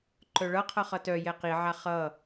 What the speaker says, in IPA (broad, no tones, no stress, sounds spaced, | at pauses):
ǃ œ ɭ ʌ qʰ ʌ χ ʌ t œ j ɛ q i ʕ a χ ʌ